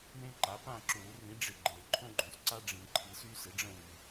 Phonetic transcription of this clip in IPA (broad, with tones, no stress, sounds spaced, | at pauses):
m ẽ˦ ǃ a˩˥ p ã˦˨ ǁ uː˨˩˦ r ĩ˩˥ ɖ͡ʐ ɪ˨ ɡ͡ǃ e˨˩˦ ǃʰ õ˦ ɡ͡ǃ õ˨ s ǀ a˦ ɖ͡ʐ ĩ˨˩˦ ǃʰ i˨ s yː˦ s ɪ˩˥ ɖ͡ʐ ə̃˦˨ w y˨